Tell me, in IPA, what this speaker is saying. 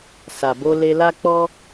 s a˨ b o˧ l e˧ l a˦ k͡p ɔ˦

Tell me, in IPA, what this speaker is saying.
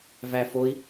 v æ f o i̯

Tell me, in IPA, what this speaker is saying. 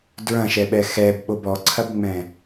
d ɹ ɐ̃ ʃ ɛ ɓ ɛ x ɛ b ɓ o b ɔ ǀʰ ɐ b ŋ͡m ɛ̃

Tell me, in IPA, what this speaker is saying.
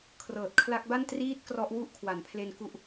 kʰ r ɤː˨˩ t̚ kʰ l a˦˥ k̚ b a˥˩ n t r iː˥˩ t̚ k r ɔ˦˥ ʔ w u˦˥ ʔ kʰ w a˩˦ n pʰ l e˧ n k u˦˥ ʔ

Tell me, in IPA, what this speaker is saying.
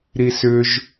ɾ i s ʏ ʒ

